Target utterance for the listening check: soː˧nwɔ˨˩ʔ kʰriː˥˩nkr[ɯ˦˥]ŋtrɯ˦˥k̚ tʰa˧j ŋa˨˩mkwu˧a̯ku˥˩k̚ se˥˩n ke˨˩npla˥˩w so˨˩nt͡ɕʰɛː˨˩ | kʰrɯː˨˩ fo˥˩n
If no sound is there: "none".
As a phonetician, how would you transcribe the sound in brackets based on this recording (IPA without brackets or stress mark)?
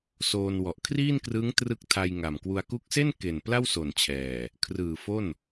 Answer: ɯ˦˥